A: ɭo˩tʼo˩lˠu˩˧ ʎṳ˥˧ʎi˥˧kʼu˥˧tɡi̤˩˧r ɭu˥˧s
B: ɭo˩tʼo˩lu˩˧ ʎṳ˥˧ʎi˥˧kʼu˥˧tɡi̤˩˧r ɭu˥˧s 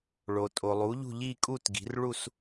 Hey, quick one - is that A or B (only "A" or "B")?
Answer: A